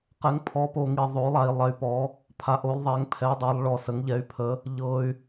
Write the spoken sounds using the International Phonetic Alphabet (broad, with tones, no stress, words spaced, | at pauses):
qɛ˨˥ŋpʰɔ˨˥po˧ ŋi˧ ðˤo˨˥lˠa˧i̯ lˠɛ˧y̯pɔ˨˥ | pʰa˨˥ʔo˨˥lˠðˤɛ˨˥ŋ pʰɛ˨˥dˤa˨˥lˠ ɭɔ˧sə˨˥ŋʎɛ˨˥y̯pʰə˨˥ | ʎɤ˧y̯